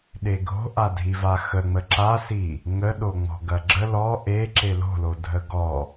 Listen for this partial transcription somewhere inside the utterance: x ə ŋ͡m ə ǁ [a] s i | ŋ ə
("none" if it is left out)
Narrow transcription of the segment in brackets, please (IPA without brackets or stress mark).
a